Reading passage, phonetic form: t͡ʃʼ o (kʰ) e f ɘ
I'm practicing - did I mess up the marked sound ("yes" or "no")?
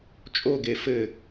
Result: yes